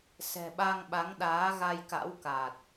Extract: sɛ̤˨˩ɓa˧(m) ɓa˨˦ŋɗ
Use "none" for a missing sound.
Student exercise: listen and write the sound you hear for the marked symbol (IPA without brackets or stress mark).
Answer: ŋ